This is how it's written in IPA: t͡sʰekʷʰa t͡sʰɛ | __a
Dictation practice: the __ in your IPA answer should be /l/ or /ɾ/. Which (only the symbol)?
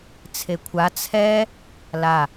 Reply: l